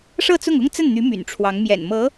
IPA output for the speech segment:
ʂɤ˥˧t͡sʊ˥˩ŋʊ˥ŋ t͡sə˥˩nn̪y˧˥ my̰˨˩nʈ͡ʂʰwɑ˧˥ŋ mjɛ̰˨˩nmɤ˧˥

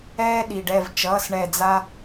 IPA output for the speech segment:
ɛː˦ ɗi˩ɖɛ˧˩v t͡ʃʌː˩˧˩s ɳɛ˧˩d͡za˦

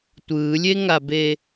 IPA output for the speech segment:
tʷɯːlʲeŋabe

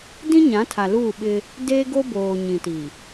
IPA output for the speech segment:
dĩ˦ɲã˨˦tʰa˨ luː˦˨ɓɪ˦ | deː˦ɡo˦boː˨ ɲĩ˨ti˨

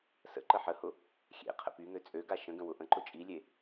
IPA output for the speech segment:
sə̰ ǃəħəhʊ | xʲḛ qʰə̰pyŋø t͡sʼøɡa ʃə̃ɡə̃ wʊʔə̃ǃʊ t͡ʃʼilʲe

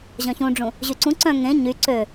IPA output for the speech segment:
ʑœ̃çũɖ͡ʐũ | ʑyǀũ ǀœ̃ ŋẽ ɲy ǀø

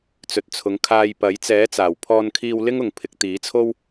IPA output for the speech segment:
t͡sɵ˨t̚t͡sʰʊ˨˧ŋ kʰaː˧jpɐ˨˥j t͡sɛː˨˥t͡saː˨˩w pʰɔː˧nkʰiː˧w lɪ˥ŋʊ˨ŋpʰɪ˨˥k̚ t̪iː˨˥t͡sʰo˥w

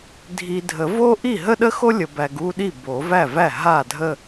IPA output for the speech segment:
dʱi˨ dʱə˨˩˦vo˥ ʔi˥˩ɦə˥ɗə˥xo˥ lʲə˨bæ˨ɡu˥˧ɗi˥˩ bo˨˩˦væ˥˩væ˥˩ ɦa˥˩dʱə˥˧

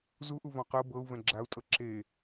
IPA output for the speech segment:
zuʔuvɔ̃ qɤ bɤu̯ vɛ̃ɡ͡ǁau̯tʼɤ ǁe

